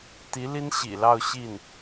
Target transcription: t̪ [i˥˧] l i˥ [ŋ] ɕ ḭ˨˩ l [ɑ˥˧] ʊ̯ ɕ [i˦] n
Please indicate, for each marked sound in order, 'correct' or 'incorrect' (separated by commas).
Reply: incorrect, incorrect, correct, incorrect